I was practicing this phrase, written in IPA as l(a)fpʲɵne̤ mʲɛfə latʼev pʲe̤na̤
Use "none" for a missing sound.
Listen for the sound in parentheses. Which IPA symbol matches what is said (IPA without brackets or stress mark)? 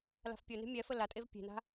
a̤